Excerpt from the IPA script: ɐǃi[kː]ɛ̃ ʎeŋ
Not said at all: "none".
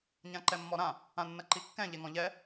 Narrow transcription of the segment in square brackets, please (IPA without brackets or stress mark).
kː